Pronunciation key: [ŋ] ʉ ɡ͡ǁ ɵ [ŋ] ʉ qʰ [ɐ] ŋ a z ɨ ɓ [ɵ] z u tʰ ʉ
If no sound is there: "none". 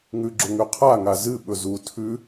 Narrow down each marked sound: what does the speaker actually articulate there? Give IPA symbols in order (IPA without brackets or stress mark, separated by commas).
ŋ, ŋ, a, ɵ